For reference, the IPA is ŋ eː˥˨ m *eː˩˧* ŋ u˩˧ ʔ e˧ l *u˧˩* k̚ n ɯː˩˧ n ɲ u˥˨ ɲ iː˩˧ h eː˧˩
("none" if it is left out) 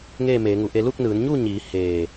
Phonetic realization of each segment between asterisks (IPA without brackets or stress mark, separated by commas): eː˩˧, u˥˨